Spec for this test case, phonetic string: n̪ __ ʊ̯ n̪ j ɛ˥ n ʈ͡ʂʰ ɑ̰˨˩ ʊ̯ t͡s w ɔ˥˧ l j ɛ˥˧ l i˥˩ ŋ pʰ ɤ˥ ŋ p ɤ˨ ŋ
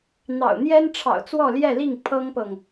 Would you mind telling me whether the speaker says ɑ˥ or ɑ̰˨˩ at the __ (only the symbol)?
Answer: ɑ̰˨˩